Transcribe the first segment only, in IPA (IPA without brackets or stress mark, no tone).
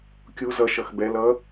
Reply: kʲ